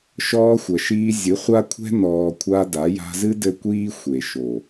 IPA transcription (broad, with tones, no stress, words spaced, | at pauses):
ʃɔː˧ xʷɐ˨ʃiː˧ zʲɨ˨˦χʷa˦kʷʰɛ̤˦ nɔː˧kʷʰa˦da˨˦ ja̤˧zɨ˦dɘ˧ kʷiː˦ xʷe˨ ʃo˨